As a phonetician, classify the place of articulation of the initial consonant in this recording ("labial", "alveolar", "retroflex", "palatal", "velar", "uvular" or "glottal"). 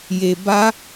palatal